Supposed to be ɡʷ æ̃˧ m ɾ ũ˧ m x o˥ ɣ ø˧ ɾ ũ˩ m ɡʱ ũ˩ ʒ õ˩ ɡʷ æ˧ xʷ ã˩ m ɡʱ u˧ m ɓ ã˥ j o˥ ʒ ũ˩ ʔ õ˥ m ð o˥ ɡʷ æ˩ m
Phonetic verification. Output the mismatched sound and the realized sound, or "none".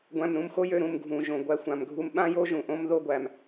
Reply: ɣ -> j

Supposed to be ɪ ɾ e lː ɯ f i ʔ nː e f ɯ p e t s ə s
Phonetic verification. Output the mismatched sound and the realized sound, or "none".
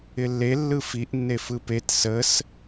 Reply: ɾ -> lː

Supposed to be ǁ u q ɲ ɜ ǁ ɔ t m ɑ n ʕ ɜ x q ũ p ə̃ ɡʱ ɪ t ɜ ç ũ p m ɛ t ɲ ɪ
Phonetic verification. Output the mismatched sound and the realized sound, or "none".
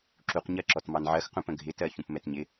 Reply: none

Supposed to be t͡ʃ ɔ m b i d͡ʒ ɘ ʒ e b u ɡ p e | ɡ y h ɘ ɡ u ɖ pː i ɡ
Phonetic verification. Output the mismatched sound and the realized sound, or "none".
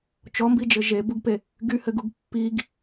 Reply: ɖ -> ɡ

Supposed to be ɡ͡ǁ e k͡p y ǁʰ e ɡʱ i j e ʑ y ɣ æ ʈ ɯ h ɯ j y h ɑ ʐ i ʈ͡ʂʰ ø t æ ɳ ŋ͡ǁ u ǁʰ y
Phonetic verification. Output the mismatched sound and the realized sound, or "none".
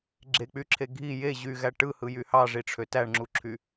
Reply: none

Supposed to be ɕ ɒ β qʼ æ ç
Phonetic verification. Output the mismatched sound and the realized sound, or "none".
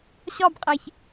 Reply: β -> b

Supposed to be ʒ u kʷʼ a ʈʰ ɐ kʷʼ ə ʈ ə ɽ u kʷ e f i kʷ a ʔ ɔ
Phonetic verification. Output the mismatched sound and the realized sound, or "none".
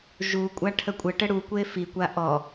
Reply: ɐ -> ə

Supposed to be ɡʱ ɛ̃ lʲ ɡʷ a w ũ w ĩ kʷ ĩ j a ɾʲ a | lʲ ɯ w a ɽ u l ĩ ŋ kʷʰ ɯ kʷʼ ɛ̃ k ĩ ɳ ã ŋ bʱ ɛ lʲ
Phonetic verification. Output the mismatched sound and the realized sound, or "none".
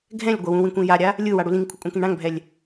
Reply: none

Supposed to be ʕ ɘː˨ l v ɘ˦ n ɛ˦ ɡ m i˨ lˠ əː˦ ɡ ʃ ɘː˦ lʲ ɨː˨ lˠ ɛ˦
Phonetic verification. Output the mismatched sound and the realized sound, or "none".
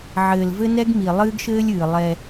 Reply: əː˦ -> ɨː˦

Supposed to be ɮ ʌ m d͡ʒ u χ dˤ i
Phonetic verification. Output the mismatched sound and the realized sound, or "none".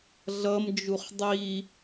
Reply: none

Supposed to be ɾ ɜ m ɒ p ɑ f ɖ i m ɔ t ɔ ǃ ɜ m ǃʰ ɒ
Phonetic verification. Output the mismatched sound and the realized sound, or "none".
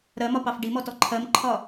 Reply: ǃ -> ǃʰ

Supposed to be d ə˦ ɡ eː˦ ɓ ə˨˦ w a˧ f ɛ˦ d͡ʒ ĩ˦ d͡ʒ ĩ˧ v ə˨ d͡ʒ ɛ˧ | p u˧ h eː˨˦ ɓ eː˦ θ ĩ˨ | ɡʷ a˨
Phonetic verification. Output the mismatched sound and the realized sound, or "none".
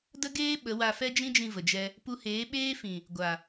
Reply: θ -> f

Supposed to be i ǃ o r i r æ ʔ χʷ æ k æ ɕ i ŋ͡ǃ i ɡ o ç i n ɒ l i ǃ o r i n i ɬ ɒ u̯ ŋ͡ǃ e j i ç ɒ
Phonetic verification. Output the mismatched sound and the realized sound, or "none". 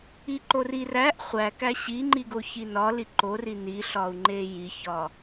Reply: none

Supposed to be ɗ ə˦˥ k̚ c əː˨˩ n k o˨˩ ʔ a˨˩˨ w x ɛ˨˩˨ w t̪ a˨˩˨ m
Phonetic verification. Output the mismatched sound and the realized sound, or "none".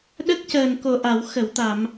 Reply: ɛ˨˩˨ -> ə˨˩˨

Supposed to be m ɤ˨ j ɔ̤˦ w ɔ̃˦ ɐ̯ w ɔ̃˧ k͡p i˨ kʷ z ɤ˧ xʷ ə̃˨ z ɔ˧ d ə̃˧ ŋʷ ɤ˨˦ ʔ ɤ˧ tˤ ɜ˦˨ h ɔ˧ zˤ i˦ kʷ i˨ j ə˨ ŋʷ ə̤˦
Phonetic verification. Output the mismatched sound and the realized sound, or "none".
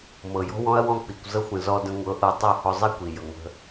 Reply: ə̤˦ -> ə̤˧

